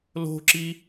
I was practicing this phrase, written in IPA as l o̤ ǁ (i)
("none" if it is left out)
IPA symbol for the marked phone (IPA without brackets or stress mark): i